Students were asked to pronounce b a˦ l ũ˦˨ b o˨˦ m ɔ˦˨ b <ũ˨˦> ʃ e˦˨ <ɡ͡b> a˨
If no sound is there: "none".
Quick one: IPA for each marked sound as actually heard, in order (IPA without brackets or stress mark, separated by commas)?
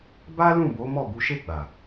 u˨˦, ɡ͡b